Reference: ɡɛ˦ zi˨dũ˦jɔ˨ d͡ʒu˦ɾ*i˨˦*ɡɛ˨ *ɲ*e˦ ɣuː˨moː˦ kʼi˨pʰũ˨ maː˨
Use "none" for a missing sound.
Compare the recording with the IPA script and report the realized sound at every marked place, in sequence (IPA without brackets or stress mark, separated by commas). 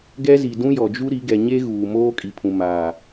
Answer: i˨˦, ɲ